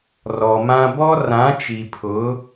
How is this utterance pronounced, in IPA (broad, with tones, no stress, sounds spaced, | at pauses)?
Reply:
r ɔ˨ m ã˦ b ɔ˦ r ã˨˦ t͡ʃ i˨ pʰ ʊ˨˦